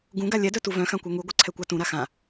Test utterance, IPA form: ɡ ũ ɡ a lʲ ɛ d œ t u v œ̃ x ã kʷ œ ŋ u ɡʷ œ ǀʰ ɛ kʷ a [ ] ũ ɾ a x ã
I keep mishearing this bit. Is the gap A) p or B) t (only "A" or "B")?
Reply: B